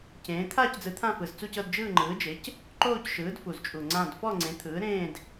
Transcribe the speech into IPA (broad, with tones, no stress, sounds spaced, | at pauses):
c ẽː˨˥ t̪ʰ aː˥˧ c d͡z ɯ˨˥ t̪ʰ ã˥˧ f ɯ˨˩ z t͡s u˥˧ c ɤ˥˧ d d͡ʒ ɯː˥˧ ŋ͡ǃ ɯː˨˥ d͡ʒ e˨˥ c | ǃ oː˥˧ c ʃ ɯː˨˥ d f u˨˩ z t͡ʃʼ u˨˩ ŋ͡ǀ ã˥˧ d f ɔ˥˧ ŋ͡ǀ ẽ˨˥ t̪ʰ ɯː˨˥ ɾ ẽː˥˧ d